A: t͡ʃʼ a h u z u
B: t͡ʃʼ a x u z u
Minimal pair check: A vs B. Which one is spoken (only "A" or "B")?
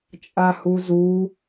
A